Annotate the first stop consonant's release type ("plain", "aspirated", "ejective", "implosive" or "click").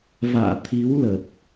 aspirated